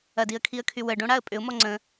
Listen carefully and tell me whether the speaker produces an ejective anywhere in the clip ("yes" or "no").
yes